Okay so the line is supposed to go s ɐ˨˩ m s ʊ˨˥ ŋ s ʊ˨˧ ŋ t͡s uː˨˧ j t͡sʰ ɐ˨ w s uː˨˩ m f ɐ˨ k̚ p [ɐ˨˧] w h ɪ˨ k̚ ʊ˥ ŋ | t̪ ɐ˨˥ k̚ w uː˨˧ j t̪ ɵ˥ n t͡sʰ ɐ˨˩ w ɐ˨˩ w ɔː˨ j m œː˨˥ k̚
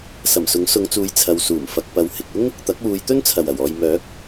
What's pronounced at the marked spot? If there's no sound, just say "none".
ɐ˨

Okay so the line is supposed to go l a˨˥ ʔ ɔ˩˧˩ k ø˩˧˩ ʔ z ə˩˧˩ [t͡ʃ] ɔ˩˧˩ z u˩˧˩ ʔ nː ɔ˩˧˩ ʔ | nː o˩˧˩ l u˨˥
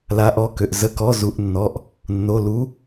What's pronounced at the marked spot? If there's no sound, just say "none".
k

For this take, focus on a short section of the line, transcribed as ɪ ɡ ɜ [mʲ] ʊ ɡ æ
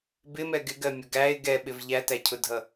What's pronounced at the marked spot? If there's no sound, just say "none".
mʲ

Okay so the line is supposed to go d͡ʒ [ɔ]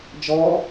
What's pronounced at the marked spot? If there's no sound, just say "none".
ɔ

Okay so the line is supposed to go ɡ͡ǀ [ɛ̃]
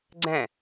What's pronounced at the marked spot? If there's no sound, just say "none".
ɛ̃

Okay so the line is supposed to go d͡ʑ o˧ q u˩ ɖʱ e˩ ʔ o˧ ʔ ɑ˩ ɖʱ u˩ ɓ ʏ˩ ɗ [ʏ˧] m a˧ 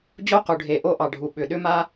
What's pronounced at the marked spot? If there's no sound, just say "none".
ʏ˧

